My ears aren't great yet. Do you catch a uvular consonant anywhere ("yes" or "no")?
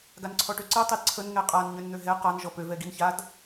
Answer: yes